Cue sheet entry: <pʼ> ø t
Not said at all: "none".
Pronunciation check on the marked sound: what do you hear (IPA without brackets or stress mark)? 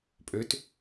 pʼ